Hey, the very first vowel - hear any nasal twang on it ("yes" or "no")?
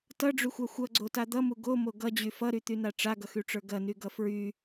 no